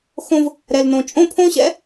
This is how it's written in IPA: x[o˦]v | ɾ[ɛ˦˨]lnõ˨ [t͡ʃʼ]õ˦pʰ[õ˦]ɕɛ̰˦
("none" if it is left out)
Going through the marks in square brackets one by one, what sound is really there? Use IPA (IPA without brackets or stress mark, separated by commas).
õ˦, ɛ˨, t͡ʃʼ, õ˦